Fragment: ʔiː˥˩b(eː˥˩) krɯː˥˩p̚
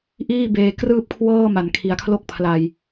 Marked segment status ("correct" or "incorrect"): incorrect